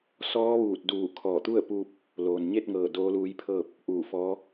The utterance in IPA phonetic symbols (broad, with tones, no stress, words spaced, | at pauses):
sɔː˧˥ʋuː˧˩t̚duː˧˩ kʰɔː˧˩t̪u˥˨ə̯puː˧p̚ | loː˩nɲe˥˨t̚ŋɤː˧˩ doː˧˥luː˧˥jpʰɤː˥˨p̚ | ʔuː˧˩fɔː˧˥